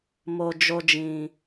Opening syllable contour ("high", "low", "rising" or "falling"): low